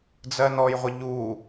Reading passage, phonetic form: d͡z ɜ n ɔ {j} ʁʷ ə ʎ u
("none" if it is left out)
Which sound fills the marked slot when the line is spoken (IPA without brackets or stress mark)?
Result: j